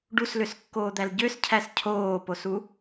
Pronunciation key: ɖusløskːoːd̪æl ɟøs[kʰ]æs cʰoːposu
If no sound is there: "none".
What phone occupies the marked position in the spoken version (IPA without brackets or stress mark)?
cʰ